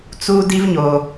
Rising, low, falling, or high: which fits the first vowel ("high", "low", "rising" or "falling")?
high